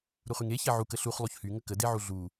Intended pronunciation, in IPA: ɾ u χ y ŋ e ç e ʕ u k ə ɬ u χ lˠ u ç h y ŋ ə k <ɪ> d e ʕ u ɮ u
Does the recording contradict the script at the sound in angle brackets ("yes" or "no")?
yes